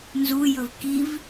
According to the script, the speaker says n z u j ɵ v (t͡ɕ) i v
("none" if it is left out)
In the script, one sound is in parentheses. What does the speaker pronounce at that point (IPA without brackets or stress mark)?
k